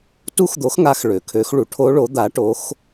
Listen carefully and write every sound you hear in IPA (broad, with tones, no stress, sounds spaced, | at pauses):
t u˦˥ x d̪ o˨˥ x ŋ a˨˥ x ɭ ø˩ kʰ ø˨˥ x ɭ u˩ ʈʰ o˦˥ ɭ o˨˥ d̪ a˨˥ ʈ o˨˥ x